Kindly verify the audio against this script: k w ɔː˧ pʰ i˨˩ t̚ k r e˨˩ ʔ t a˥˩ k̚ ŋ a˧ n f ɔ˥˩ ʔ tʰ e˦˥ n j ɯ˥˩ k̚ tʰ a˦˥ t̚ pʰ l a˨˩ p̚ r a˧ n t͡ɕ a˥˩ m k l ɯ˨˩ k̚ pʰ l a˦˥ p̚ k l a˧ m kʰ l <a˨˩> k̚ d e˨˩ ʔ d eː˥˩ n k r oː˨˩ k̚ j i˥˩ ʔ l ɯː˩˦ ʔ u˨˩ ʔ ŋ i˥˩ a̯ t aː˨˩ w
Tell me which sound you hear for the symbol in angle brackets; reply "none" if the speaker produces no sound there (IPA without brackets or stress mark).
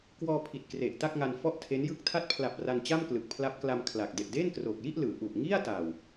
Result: a˨˩